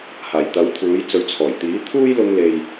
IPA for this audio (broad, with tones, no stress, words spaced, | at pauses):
haː˨˩jt̪ɐ˨˥wt̪ʰuː˨˥j t͡sɵ˨˥ɥt͡sʰɔː˨˩jt̪iː˨˥ t̪ʰuː˥jlʊ˧ŋle˨j